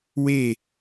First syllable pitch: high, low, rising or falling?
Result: falling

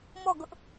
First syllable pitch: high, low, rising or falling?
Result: falling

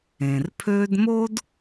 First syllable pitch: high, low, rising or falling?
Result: low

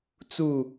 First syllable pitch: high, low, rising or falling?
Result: falling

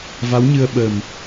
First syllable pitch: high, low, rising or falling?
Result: rising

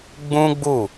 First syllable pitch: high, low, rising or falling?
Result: high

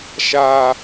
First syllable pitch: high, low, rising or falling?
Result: high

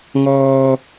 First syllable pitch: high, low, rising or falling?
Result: high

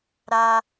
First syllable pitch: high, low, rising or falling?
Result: high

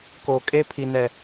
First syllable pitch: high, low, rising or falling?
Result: low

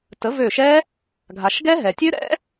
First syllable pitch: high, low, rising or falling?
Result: rising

